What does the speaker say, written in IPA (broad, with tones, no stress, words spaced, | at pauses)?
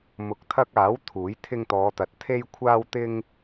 mʊ˨˥k̚t̪ʰɐ˧k̚aː˨˥w t̪ʰuː˨˥jt̪ʰɪ˧ŋt̪ɔː˨˧t̪ɐ˨t̚ t̪ʰe˧jkʷʰaː˧w t̪ɪ˧ŋ